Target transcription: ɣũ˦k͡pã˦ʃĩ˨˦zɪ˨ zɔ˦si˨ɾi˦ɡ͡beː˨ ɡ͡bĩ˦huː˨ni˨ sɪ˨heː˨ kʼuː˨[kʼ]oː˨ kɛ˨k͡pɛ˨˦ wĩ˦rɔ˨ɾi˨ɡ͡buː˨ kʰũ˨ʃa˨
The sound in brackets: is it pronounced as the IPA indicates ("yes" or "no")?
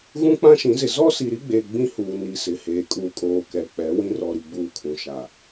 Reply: yes